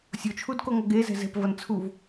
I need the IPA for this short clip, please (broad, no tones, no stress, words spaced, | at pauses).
sʲot͡ʃʰudkoŋʌ ɡezɛ̤ zɛ̤pvʌnt͡sʰuv